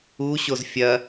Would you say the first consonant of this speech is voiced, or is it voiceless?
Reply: voiceless